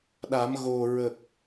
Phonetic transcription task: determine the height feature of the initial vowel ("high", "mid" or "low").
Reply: low